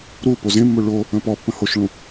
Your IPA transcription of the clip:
ɾ u p o z ẽ mː o ɭ o | ə̃ p ɔ pː ə̃ h o ʃ ɭ ũ

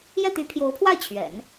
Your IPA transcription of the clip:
j ɛ˥˩ t̪ y˧˥ pʰ j o˧˥ ʊ̯ pʰ w a˥˩ ɪ̯ t͡ɕʰ ɥ ɛ̰˨˩˦ n

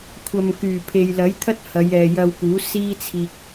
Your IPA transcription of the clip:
kʷʰ ɐ˨ m k yː˨˩ pʰ e˨ j l ɐ˨˥ j t̪ʰ ɐ˥ t̚ h ɐ˨˧ j ɛː˨ j ɐ˧ w k uː˨˥ s iː˥ t͡sʰ iː˧ k̚

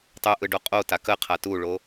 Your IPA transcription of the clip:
tˤ ʉ ʔ ɯ ɖ o qʼ o t a k ə qʰ a t u ɭ o

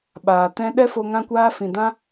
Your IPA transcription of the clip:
ɓ aː˨ t ɛ̃˦ ɗ ɛ˦ f o˧ ŋ ã˦ kʷ aː˦ f ĩ˨ d ã˦

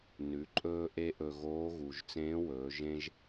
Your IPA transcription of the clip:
n ʉ˩˧ ǃʼ ɵː˧ ʔ e˥ ʔ ɵ˧ ɣ oː˧˥ ɣ u˩ ʒ t͡s ẽː˧˥ w ɵː˩˧ ʒ ẽ˥ ʒ

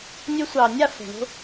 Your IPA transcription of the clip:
nʲ ɵ˧ sʷ ɑ˨ nʲ a˦˨ f ɛ̤˨ ɳ o̤˦

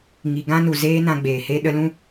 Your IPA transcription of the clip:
ŋ i˨ ɡ ã˦ n u˨ z eː˦ n ã˧ ɡ͡b eː˨ h e˦ ɗ ə˧ l ũ˦

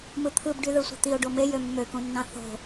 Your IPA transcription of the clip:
m ɯ t̪ʰ ɯ b ɖ y ð ɯ sʷ e̤ t̪ i o̯ ɖ o m e j ø mː ø k ũ nː ɑ̃ θ o̤

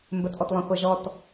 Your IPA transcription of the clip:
m b ə t ʔ ɔ t lˠ œ̃ χʷ a ʒ ɔ t

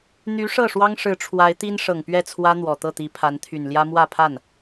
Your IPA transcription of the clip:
n̪ y˧˥ ʂ ɤ˥˩ ʂ w ɑ˥ ŋ ʂ ɻ̩˧˥ ʈ͡ʂʰ w a˧˥ ɪ̯ t̪ i˥ n ʂ ɤ˨˩ ŋ p ɥ ɛ˥˩ t͡sʰ w ä˥ n̪ w ɔ˨˩ t̪ ɤ˥˩ t̪ i˧˥ pʰ a˧˥ n t̪ʰ y˨˩ n l j ä˥ m w ä˥˧ pʰ a˥˩ n

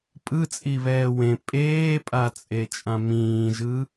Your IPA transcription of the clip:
pʼ ɯ t͡sʼ i β ɛː w ẽ pʼ eː pʼ a t͡sʼ e t͡ʃʼ ã m ĩː ʒ ɯ

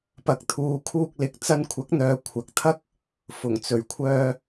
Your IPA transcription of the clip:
p ɐ˨ k̚ t̪ʰ uː˨ kʰ uː˧ k̚ l ɪ˨ k̚ t͡s ɐ˧ n kʷʰ ɐ˨˥ k̚ n̪ œː˨˧ kʷʰ ɐ˨˥ k̚ t̪ʰ ɐ˥ k̚ | f ʊ˨˩ ŋ t͡s ɵ˨˩ ɥ kʷʰ œː˧

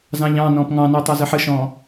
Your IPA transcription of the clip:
z ɑ̃ ʎ ɑ̃ n ɔ̃ p ŋ ɑ̃ n o tˤ a z ə ħ ə ʃ ɔ̃ː

